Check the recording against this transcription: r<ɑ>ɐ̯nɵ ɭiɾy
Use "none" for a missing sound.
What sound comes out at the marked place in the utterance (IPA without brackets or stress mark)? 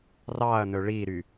ɑ